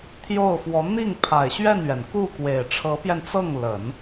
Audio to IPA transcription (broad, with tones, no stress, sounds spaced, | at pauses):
t̪ʰ j o˥˩ ʊ̯ f w ɔ˧˥ n̪ i˥˩ ŋ pʰ a˨˩ ɪ̯ ɕ ɥ ɛ˥˩ n ɥ ɛ˩ n k u˥˩ k w e˨˩ ɪ̯ ʈ͡ʂʰ ɤ˧˥ p j ɛ˧ n t͡s ɤ˥˩ ŋ l ə˨˩˦ n